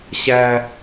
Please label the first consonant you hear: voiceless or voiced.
voiceless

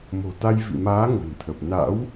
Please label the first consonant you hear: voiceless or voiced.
voiced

